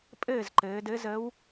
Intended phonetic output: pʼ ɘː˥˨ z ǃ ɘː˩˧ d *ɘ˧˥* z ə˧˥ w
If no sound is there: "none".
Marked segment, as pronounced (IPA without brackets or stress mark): ɘ˧˥